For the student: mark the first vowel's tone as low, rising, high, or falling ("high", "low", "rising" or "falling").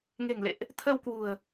low